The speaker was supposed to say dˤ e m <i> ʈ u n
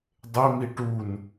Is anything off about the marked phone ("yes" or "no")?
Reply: no